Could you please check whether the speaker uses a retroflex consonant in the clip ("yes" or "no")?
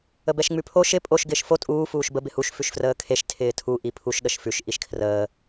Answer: no